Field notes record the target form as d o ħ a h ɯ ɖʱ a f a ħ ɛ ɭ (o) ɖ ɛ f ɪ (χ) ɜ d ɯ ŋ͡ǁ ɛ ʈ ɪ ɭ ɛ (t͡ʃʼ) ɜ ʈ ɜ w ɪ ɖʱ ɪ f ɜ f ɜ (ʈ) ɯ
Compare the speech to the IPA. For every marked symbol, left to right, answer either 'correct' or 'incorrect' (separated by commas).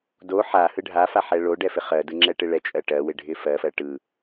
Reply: correct, correct, correct, correct